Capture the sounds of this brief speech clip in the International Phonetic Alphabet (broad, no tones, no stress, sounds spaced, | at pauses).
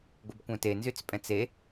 ɡʷ ə b kʷ œ̃ t e n z y t͡s pʼ ɛ̃ t͡s e